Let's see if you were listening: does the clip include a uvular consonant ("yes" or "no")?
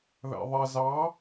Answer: no